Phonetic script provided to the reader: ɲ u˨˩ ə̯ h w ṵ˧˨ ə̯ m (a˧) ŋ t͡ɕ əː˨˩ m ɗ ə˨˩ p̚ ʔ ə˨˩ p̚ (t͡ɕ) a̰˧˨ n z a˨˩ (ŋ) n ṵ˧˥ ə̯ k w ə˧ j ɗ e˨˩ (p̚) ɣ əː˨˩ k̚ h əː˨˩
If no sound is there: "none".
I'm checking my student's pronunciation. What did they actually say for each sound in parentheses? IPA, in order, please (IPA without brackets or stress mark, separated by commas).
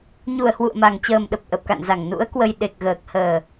a˨˩, k, ŋ, k̚